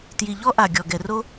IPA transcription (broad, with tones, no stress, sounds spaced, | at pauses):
t j i˩ ʎ ɔ˧ ʔ a˩ ɡʲ ɔ˩ ɡ ɛ˩ r o˧